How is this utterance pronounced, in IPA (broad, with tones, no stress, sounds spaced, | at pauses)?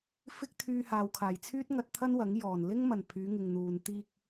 f ɪ˥ k̚ t̪ʰ yː˧ h aː˨ w kʰ aː˨˩ j t͡sʰ yː˥ t̚ ŋ ɐ˧ t̚ t̪ʰ ɐ˥ n w ɐ˨˥ ŋ j ɔː˨˩ n l ɪ˥ ŋ m ɐ˨˩ n pʰ yː˨˧ ŋ ɪ˨ ŋ n̪ uː˨ n t̪ iː˧ k̚